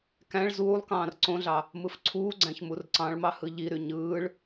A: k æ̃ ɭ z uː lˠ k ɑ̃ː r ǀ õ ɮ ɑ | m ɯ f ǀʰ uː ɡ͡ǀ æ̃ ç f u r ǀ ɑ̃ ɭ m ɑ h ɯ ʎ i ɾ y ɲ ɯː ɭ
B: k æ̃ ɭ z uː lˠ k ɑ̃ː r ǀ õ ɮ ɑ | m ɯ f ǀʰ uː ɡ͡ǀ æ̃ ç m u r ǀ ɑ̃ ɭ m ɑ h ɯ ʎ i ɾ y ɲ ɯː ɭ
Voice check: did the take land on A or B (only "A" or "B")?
B